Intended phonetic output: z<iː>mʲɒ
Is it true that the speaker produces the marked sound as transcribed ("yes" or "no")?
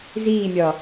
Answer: yes